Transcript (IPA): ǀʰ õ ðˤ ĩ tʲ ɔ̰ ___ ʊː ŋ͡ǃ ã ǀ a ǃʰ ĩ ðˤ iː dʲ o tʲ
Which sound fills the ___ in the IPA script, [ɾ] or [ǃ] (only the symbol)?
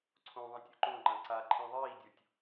ǃ